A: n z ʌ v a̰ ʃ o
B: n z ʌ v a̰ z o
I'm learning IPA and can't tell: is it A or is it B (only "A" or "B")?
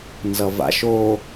A